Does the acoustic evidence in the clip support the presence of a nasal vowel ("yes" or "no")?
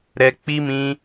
yes